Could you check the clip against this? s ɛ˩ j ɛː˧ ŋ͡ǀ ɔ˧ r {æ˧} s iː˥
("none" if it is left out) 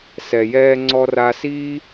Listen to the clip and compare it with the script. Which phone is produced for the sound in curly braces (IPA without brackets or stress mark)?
a˧